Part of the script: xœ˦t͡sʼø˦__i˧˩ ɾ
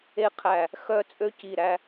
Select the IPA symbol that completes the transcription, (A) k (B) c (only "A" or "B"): B